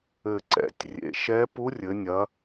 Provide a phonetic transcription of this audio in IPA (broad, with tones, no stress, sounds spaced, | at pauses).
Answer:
ɘ˨˩ ǀ ɛ̰˩˧ tʲ rʲ ḛ˩˧ ʃ ɛ˧˥ p u˧˥ rʲ ɘ˩˧ nʲ ɐ˩˧